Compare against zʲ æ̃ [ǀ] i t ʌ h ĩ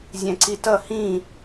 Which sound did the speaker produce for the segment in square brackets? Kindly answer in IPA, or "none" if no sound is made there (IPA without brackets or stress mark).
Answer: ǀ